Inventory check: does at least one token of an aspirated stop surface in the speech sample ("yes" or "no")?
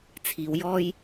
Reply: yes